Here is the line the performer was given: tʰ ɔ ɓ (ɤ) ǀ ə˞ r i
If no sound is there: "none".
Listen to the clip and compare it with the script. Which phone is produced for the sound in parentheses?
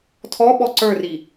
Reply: ɔ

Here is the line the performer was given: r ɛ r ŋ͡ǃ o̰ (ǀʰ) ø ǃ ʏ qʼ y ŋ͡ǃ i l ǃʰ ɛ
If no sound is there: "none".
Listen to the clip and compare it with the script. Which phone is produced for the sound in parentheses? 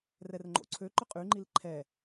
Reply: ǀʰ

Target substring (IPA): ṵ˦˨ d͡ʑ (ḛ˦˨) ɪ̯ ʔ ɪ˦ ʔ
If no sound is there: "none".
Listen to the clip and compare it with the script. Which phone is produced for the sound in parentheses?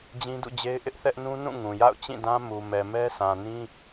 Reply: e˦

